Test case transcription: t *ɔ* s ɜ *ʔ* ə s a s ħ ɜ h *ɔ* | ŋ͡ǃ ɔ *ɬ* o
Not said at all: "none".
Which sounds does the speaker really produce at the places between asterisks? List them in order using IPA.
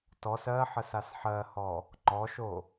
ɔ, ħ, ɔ, ʃ

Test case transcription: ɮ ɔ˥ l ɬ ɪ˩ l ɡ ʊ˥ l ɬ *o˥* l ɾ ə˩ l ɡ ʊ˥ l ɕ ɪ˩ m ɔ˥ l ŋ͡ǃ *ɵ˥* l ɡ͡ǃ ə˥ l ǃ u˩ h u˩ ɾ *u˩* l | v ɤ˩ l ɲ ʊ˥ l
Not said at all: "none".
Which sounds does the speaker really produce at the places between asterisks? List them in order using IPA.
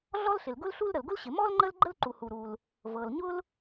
u˥, ə˥, u˩

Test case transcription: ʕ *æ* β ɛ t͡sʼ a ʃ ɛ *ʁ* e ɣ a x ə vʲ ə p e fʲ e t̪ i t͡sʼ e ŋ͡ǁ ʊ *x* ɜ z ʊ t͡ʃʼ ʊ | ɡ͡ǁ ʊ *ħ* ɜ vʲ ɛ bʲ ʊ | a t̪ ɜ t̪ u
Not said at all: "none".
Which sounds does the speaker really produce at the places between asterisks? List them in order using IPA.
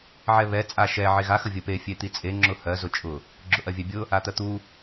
ɛ, ʕ, h, ʔ

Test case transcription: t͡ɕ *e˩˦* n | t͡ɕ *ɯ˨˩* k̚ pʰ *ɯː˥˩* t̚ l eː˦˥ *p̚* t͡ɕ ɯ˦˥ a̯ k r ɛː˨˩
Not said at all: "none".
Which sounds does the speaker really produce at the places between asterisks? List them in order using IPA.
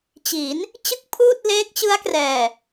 i˩˦, ɯ˥˩, uː˥˩, k̚

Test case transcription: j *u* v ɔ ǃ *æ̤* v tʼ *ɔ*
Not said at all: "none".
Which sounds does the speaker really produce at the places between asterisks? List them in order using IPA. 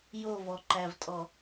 o, æ, ɔ

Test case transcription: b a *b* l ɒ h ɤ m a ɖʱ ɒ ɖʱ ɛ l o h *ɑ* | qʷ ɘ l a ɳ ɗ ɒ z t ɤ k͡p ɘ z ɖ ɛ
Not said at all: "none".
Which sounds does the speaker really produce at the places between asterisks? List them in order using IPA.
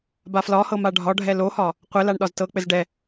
f, ɒ

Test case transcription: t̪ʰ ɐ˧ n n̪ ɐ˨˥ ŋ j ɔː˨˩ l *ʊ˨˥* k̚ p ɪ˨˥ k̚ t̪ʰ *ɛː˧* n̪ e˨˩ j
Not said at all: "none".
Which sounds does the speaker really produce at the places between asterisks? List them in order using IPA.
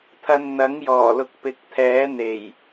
ʊ˨˥, ɛː˨˥

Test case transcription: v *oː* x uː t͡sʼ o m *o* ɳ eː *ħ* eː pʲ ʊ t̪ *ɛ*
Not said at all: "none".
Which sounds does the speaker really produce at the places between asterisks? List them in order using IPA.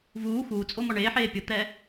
uː, ɔ, ħ, ɛː

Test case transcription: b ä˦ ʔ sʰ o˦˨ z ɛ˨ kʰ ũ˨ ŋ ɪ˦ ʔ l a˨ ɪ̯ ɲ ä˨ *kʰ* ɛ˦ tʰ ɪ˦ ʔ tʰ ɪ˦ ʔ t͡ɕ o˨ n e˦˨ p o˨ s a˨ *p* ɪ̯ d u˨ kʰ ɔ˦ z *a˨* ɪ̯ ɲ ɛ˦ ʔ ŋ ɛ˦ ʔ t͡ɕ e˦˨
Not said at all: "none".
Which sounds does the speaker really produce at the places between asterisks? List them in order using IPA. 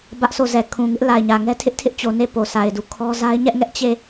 ŋ, none, a˦

